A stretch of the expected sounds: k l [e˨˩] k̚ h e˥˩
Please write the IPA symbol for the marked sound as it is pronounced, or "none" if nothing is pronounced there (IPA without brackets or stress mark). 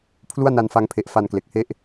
e˨˩